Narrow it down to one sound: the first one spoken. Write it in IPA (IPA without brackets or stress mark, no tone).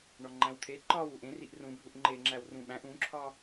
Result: ɳ